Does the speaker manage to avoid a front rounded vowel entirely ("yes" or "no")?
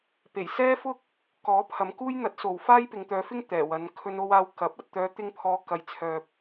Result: no